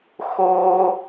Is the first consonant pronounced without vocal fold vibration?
yes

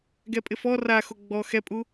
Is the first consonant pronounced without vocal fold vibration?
no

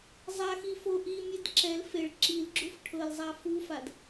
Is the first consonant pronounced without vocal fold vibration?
no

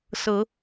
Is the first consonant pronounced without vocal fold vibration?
yes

